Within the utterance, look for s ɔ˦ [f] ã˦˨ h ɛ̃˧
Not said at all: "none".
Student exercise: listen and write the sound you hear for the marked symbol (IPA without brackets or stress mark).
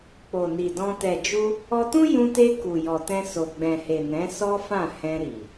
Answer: f